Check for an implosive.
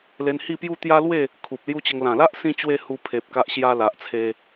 absent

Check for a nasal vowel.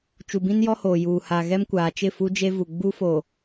present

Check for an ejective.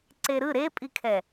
present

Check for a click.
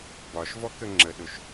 present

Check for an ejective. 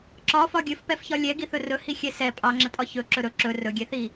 present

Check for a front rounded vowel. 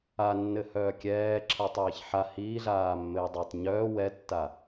present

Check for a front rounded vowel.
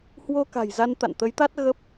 absent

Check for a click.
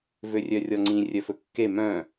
present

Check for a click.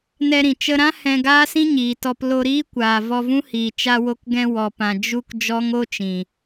absent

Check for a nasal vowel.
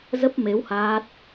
absent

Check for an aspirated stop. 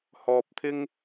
present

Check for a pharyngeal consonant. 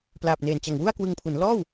absent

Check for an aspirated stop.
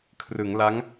present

